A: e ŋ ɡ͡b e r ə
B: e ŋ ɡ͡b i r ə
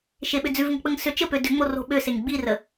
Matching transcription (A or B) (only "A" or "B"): B